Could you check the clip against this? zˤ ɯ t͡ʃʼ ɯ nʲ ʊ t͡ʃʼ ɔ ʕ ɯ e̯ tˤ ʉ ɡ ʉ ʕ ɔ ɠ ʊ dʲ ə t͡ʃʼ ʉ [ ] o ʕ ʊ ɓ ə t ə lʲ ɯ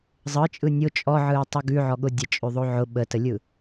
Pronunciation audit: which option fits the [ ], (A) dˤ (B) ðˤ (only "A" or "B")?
B